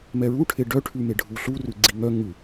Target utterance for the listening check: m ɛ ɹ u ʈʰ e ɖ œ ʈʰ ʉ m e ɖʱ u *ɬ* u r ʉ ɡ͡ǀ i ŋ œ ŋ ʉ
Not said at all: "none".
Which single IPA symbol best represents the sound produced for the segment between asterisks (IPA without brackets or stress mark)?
ɬ